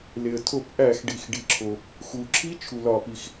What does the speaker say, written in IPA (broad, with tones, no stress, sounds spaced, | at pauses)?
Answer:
l e˩ ə̯ tʰ o˧˩˧ p ʔ æ˧˩˧ x ɖ i˩ x ɖ i˩ ǁʰ o˩ | x u˩ ǁʰ i˧˥ t͡ʃʰ u˩ l ɒ˧˩˧ p i˩ x